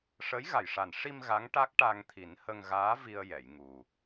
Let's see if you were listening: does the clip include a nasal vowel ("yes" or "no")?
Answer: no